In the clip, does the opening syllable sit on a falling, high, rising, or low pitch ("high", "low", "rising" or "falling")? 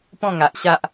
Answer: falling